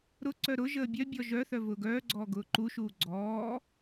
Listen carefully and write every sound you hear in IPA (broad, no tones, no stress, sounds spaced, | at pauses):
ɾ ʊ ǀ œ ɾ ʊ ʒ əː bʲ œ bʲ ɔ ʒ œ θ œ v ʊː ɡ œː ɡ͡ǀ ɔː ɡ ʊː ǃ u ʃ uː ɡ͡ǀ ɔː